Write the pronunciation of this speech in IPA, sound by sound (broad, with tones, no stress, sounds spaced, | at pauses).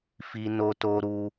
f i˧ n o˧ t o˧ ɾ u˧